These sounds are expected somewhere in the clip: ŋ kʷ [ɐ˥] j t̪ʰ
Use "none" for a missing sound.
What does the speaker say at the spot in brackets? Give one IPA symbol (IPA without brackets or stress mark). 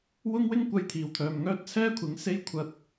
ɐ˥